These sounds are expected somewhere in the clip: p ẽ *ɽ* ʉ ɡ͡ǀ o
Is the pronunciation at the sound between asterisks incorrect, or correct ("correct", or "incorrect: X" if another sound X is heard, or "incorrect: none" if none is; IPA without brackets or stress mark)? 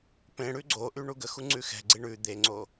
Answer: correct